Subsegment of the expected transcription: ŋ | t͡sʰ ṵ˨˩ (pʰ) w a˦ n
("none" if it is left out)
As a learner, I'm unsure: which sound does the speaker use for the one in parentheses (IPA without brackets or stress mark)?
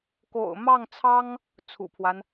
pʰ